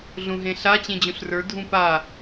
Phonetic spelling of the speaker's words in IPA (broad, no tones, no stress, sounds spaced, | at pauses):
ɮ ũ ɦ ẽ ɬ a t͡ɕ ẽ d͡ʑ ũ ɬ r ə˞ dʱ ũ p a